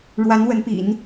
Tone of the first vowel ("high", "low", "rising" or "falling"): rising